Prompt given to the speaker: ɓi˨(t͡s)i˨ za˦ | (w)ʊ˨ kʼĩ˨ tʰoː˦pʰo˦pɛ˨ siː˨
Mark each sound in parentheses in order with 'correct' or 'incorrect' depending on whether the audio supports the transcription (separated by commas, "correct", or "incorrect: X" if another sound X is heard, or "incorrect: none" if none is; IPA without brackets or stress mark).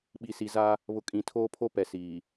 incorrect: s, incorrect: β